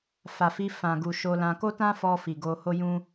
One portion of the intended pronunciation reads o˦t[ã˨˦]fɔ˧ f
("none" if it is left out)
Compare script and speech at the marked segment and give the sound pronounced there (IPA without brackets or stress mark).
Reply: ã˦